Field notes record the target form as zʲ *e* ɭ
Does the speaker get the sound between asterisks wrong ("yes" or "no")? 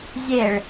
no